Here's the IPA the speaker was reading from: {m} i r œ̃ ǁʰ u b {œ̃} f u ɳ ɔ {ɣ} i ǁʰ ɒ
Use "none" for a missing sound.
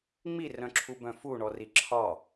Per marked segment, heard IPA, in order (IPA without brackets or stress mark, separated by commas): ŋ͡m, œ̃, r